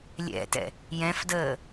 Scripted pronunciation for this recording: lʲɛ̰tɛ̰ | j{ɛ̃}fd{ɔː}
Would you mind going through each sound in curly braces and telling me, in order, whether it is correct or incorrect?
correct, incorrect: əː

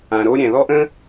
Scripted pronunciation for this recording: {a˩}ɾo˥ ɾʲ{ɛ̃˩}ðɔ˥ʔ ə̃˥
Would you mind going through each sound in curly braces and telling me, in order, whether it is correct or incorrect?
incorrect: ã˩, correct

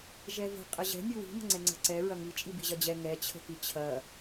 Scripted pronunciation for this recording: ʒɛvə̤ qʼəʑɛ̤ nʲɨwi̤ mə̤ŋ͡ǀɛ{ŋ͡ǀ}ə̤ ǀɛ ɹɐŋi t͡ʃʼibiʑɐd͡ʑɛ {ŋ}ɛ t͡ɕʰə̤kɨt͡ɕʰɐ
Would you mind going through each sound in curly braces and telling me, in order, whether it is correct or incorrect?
correct, correct

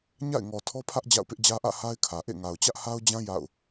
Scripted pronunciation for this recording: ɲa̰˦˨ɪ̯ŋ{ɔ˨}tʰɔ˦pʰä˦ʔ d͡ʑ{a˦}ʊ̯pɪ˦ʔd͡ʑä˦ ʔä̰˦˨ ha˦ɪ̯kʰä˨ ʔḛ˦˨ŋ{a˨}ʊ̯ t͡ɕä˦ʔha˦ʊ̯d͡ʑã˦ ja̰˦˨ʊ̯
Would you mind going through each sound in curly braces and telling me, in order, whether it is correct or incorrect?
correct, incorrect: a̰˦˨, correct

